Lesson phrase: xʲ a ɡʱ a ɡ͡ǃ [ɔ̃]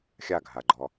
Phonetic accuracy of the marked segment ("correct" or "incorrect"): incorrect